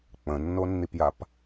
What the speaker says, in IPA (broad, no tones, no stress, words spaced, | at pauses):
k͡pə̃nːonːipjap